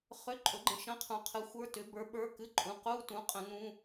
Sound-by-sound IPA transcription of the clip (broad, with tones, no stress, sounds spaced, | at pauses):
χ ʏ˧˥˧ ǃʼ ɵ˨˥ ɡ͡ǃ ə̃˨˥ ʃ ə̃˧˥˧ qʰ ũ˨˥ qʰ ɨ˨˥ xʷ ə˞˧˥˧ t ʏ˨˥ b ə˞˨˥ ɓ ə˞˧˥˧ k ɨ˧˥˧ ǃʼ ũ˨˥ q u˧˥˧ t ũ˨˥ qʼ ə̃˨˥ n ũ˧˥˧